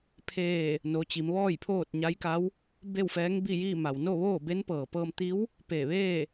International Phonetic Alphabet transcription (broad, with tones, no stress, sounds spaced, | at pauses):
pʰ eː˧˩ | n o˩˧ t͡ɕ i˩˧ m ʋ ɔː˥˨ j pʰ oː˥˨ t̚ ɲ a˧˥ j k a˧˥ w | b e˥˨ w f ɛː˧˥ ŋ b i˥˨ j iː˥˨ m a˩ w n o˥˨ ʋ oː˥˨ b e˧˥ n p ɤː˩ p ɤː˧ m t̪ i˧˥ w | p e˧˩ ʋ eː˥˨